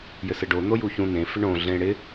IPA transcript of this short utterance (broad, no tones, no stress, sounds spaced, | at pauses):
j ɘ s ɘ ɖ o n̪ o j u ç ũ n̪ ẽ f ɪ ɳ õ ɮ ẽ ɽ ɪ